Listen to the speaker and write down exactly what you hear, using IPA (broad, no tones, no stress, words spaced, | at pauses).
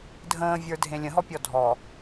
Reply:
dʱə̃ːvʲə˞dʱẽ lʲə̃ɦɔpʲɔ dʱɔ